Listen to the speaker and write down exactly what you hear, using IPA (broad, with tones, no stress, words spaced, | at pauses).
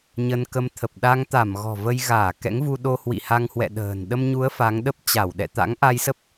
ɲə˧nkə˧m t̪ʰə˨˩p̚ɗa˧ŋ t̪a˧˩m ɣɔ̤˨˩və˧jɣaː˧˩ kɛ̰˧˥ŋvu˧ɗo˧ hwḭ˧˨ha˧ŋhwɛ̰˧˨ ɗə̤ː˨˩n ɗə˧mɲu˨˦ə̯ fa˨˦ŋɗə˦˥p̚ t͡ɕa˧˩wɗɛ̰˧˨ t̪a̰˧˥ŋʔa˧jsə˦˥p̚